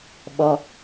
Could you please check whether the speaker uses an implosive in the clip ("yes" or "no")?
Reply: yes